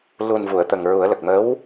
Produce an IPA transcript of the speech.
l u˨˩ n v u˨˩˨ ə̯ t̪ ə˨˩ ŋ ɹ u˨˩˦ ə̯ l ə˨˩ k̚ m ə˧˥ w

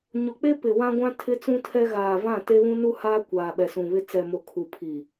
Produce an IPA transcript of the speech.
ɲ o˨ k͡p e˦ p ɪ˨ w ã˦ ɡʷ ã˦ tʰ ɪ˦ t͡s ũ˦ tʰ ɛ˦ ɣ aː˨ v ã˦˨ t e˦ β ũ˦ n u˦ h aː˦ kʷ aː˨ ɓ ɛ˨ s ũ˨ β ɪ˦ t͡s ɛ˨ m o˨ kʰ u˨ pʰ i˨

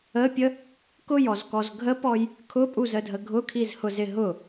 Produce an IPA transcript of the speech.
ə pʲ ə | k ʊ j ɔ z k ɔ z ɡʱ ə p ɔ j | kʰ ʊ pʼ u z ə dʱ ə ɡʱ ʊ kʰ i z h ʊ z ɪ ɦ ʊ

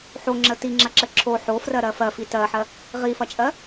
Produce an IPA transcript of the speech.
ħ o ŋ͡ǁ ə t i ŋ͡ǁ ɐ ǁ ə ǁʰ o ħ o f r ɜ ɾ ɜ f ɜ f i t ɜ ħ ɜ | ʁ i f ɐ t͡ʃʼ ɜ

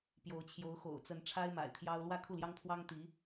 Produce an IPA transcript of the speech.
p j o˧˥ ʊ̯ t͡ɕʰ j o˧˥ ʊ̯ x o̰˨˩ ʊ̯ t͡s ə˧˥ n ʈ͡ʂʰ a˥ ɪ̯ m a̰˨˩ ɪ̯ t̪ʰ j ɑ˥ ʊ̯ l w ä˥˧ kʰ u˥˩ l j ɑ˥ ŋ pʰ w ɑ˥ ŋ t̪ i˧˥

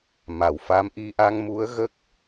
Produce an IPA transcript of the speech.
m a˨˩ w f a˧˥ m ʔ i˧ ʔ a˧ ŋ m u˧˥ ə̯ ɣ ə˦˥ k̚

